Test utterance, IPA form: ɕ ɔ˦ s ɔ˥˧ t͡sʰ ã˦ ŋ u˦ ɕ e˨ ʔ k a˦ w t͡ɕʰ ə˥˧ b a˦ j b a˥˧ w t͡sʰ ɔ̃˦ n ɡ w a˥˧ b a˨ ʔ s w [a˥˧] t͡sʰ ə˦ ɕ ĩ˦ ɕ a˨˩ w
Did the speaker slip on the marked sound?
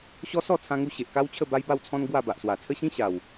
yes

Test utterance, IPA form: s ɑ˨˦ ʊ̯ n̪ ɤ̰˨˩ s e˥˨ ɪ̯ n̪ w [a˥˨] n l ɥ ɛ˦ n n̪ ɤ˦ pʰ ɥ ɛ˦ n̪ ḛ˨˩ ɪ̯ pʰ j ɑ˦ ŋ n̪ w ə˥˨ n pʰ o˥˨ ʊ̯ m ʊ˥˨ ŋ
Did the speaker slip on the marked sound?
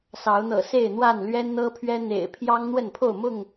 no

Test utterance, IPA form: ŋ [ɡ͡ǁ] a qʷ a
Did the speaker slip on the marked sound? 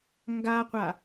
yes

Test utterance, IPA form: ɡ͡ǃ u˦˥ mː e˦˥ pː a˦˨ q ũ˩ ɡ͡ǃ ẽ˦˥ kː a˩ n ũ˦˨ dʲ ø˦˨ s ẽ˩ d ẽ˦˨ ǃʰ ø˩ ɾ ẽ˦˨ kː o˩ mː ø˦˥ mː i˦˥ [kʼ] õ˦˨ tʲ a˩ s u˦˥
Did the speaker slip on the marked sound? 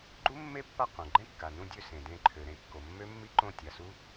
yes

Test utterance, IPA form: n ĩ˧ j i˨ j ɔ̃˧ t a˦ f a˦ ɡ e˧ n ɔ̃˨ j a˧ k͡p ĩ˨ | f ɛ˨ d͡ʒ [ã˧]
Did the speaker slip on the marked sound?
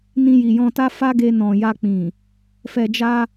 yes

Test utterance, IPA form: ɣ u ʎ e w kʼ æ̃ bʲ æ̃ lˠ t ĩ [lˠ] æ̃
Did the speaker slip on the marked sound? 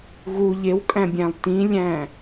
yes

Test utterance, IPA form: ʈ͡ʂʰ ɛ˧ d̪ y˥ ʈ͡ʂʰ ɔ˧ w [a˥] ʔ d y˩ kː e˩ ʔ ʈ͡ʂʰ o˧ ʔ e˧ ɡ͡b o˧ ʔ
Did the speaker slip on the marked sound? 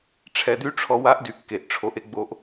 no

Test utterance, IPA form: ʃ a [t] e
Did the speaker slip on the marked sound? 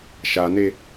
yes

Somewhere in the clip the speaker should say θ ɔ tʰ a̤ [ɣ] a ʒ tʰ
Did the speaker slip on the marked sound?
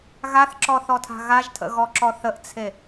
no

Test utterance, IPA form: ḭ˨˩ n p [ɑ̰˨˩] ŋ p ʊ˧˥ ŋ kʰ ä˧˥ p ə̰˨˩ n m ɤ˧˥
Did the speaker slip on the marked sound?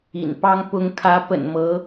yes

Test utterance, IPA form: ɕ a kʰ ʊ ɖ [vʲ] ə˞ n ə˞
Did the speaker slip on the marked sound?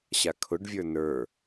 no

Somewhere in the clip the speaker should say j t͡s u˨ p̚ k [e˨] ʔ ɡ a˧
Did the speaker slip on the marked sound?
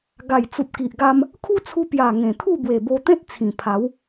yes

